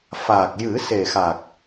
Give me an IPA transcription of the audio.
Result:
f aː˨˩ k̚ j ɨ˨˩˦ s e˨˩ x a˨˩ k̚

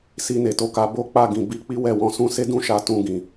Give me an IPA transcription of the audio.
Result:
s i˧ n e˨ t o˨˦ k a˧ b o˦ k͡p a˦˨ ɡ ĩ˨ b i˧ k͡p i˦ w ɛ˦˨ w ɔ̃˧ s ũ˦ s e˦ d ũ˦˨ ʃ a˧ t ũ˧ ɡ ĩ˨

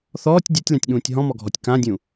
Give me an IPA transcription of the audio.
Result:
θ ɔː tʲ dʲ a tʲ l ã tʲ ɠ ũː tʲ ɦ ɔ̃ m ɔ ɡʱ ɔ tʲ k ã dʲ ũ

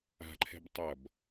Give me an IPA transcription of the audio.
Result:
a̤ ǃʰ ɛ̤ b tˤ ʌ b

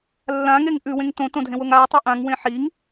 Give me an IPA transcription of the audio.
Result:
lː ã ŋ e ŋ ʔ ʉ w ẽ ŋ t õ t õ dʱ ẽ w o ŋ a tˤ i ʔ ã ŋ w ẽ ħ i ŋ

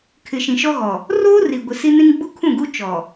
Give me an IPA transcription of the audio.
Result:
kʰ ɪ˨ ʃ ĩ˨ ʃ ɔ˦ ɣ ɔ˨ | r oː˦ r i˨ ɡʷ ɪ˨ s i˦ n ĩ˦ ŋ ɡ͡b u˦ kʰ ũ˦˨ ɡ u˦ t͡ʃ ɔ˨

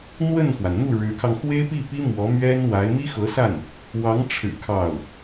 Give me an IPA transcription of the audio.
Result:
n̪ w ə˥˩ n x w a˩ n n̪ u˥˩ ɻ ɻ̩˧˥ kʰ ɑ˧ ŋ x w e˥ ɪ̯ p i˥˩ p i˥ m w ɔ˧˥ m ɥ ɛ˥ n w a˧˥ ɪ̯ m i˥ x ɤ˧˥ s a˥˩ n | w ɑ˧˥ ŋ ʈ͡ʂʰ ɻ̩˨˩ kʰ ɑ˥˩ ʊ̯

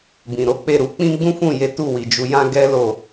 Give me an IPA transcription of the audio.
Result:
b ĩ˨ ɾ o˨˦ k͡p e˦˨ ɾ u˧ k͡p ĩ˦ ɡ͡b ũ˦ f ũ˦˨ j e˨˦ t u˦˨ w i˨ d͡ʒ u˧ j ã˦ ɡ ɛ˦ l o˦˨

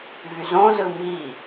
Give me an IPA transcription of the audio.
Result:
v y z õ z ɯ m i

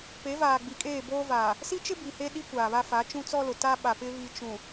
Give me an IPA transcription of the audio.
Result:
p e˨˦ v aː˨ ɡ͡b i˨ kʼ eː˦˨ b oː˦ v aː˨ | s i˦ t͡ʃ ɪ˦ b i˨ h e˦ ɗ i˦ kʷ aː˨ β a˦ f a˨˦ t͡ʃ ũ˦ t͡s ɔ˦ l ʊ˨ t a˦ ɓ a˨ p ɪ˦ β i˨ t͡ʃ ũ˨

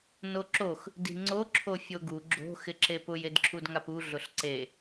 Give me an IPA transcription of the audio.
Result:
n o ǁ o x | d i̤ ŋ͡ǀ o ǁʰ o fʲ o ɡ u ɡ͡ǁ o̤ x ɪ ǁ e p ʊ j e d ǁʰ u d ŋ a p u ɮ ʊ ɬ ǀ e

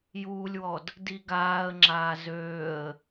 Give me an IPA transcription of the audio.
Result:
j uː lʲ w ɔ d | d i ɡ aː ə̯ ŋ͡ǁ aː z øː ə̯

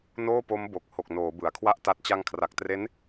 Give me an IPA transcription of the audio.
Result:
n oː˥˩ p o˦˥ m b o˨˩ k̚ h o˨˩ k̚ n oː˩˦ b ɯ˩˦ a̯ kʰ w a˥˩ ʔ t a˦˥ t̚ t͡ɕ a˧ ŋ kʰ r a˨˩ k̚ t r e˦˥ n

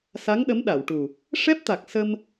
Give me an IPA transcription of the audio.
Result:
s a˧˥ ŋ ɗ ə˧˥ m ɗ a˨˩˨ w ʈ u˨˩ | ʂ ɛ˦˥ p̚ t̪ a˨˩ k̚ s ə˧ m

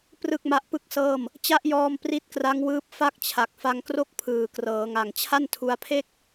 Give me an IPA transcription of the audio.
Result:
p r ɯ˥˩ k̚ m a˦˥ ʔ p ɯ˥˩ k̚ s ɤː˥˩ m | t͡ɕ a˦˥ ʔ j ɔː˧ m p r i˦˥ t̚ k r a˦˥ ŋ w ɯː˦˥ p̚ f a˥˩ k̚ t͡ɕʰ a˨˩ k̚ f a˧ ŋ k r o˥˩ k̚ pʰ ɯː˨˩ k r ɤː˩˦ ŋ a˨˩ ŋ t͡ɕʰ a˥˩ n tʰ u˧ a̯ pʰ e˥˩ k̚

